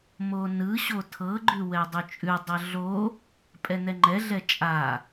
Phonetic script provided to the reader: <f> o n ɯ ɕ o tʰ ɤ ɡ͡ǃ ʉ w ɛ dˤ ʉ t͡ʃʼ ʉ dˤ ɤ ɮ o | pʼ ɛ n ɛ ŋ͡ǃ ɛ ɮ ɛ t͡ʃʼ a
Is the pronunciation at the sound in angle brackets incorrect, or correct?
incorrect